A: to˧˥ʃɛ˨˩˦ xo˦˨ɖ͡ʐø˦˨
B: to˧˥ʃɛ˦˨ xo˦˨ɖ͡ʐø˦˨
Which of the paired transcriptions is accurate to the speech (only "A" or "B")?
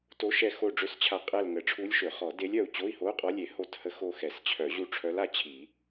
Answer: B